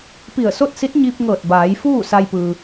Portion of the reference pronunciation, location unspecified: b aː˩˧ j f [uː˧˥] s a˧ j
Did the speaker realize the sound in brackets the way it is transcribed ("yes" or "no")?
no